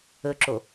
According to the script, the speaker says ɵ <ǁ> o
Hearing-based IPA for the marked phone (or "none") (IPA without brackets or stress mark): ǁ